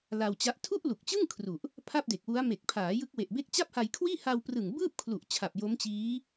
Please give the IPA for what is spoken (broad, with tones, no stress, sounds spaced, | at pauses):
l a˧ w t͡ɕ a˦˥ ʔ tʰ u˥˩ ʔ l u˨˩ k̚ t͡ɕ ɯ˥˩ ŋ kʰ r u˨˩ ʔ | pʰ a˥˩ p̚ d e˨˩ k̚ w u˦˥ a̯ m e˨˩ k̚ pʰ aː˩˦ j ɯ˦˥ k̚ w e˨˩ ʔ b e˥˩ k̚ t͡ɕ a˥˩ p̚ h a˧ j kʰ w iː˥˩ h a˧ w p r ɯ˨˩ ŋ b ɯː˥˩ p̚ kʰ l u˨˩ ʔ t͡ɕʰ a˨˩ p̚ j o˦˥ m t͡ɕ iː˦˥